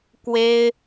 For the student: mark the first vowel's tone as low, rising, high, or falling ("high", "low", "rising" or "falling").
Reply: high